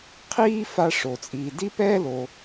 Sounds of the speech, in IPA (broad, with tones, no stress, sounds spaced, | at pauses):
qʰ iː˥ f a˧ ʂ o˩ t͡sʼ iː˩ d i˥ p ɛː˥ l o˩